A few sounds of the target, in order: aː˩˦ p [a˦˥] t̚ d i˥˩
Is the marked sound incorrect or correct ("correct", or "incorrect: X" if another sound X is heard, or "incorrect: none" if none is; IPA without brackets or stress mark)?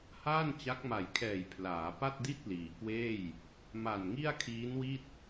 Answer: incorrect: a˥˩